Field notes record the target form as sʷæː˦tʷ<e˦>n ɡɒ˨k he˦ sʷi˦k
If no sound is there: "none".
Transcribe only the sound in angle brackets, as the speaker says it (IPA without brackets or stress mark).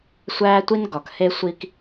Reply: i˦